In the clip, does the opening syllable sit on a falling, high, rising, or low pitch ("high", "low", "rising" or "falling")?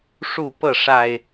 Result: falling